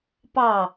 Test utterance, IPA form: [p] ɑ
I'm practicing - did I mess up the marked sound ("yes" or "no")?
no